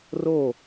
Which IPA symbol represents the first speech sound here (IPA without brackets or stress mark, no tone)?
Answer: r